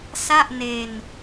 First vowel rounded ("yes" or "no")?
no